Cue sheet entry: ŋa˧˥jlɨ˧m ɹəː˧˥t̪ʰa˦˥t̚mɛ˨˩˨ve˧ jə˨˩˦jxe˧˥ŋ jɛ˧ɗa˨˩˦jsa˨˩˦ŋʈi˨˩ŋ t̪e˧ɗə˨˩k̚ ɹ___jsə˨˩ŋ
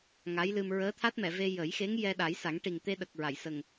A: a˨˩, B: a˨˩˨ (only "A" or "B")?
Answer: B